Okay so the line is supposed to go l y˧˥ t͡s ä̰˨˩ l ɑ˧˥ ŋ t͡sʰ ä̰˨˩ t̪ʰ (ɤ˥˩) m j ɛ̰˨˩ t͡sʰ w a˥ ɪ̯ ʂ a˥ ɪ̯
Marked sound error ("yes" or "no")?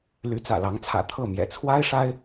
no